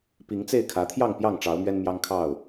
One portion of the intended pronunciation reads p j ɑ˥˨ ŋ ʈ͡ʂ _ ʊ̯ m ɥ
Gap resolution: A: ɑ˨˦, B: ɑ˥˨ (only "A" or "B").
A